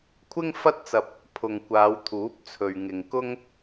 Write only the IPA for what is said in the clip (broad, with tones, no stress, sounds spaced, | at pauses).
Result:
kʷʰ ɪ˥ ŋ f ɐ˥ t̚ t͡s ɐ˧ p̚ | pʰ ʊ˨ ŋ kʷ aː˨˧ w t̪ʰ uː˨˥ p̚ t͡sʰ ɵ˨ ɥ ŋ ɪ˨ ŋ k ʊ˥ ŋ